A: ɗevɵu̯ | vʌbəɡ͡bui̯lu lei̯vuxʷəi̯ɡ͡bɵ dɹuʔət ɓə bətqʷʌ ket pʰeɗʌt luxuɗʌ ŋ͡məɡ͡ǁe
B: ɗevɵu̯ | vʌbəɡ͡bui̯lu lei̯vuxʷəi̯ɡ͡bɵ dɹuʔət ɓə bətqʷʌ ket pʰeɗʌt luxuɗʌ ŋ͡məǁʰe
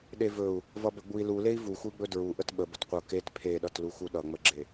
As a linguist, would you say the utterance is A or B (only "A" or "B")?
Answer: A